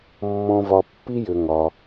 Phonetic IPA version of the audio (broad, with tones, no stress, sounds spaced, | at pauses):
mː ɔ̃˦ v ɒ˧ pː i˦ j ʏ˧ ŋ ɒ˧